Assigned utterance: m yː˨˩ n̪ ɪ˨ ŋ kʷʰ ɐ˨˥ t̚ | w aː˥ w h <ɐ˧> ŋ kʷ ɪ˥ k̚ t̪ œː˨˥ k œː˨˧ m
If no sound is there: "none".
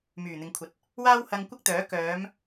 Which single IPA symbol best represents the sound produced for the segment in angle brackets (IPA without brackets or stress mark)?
ɐ˧